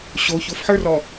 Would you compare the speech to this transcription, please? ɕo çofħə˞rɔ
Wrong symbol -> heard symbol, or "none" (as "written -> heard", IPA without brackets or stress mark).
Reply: none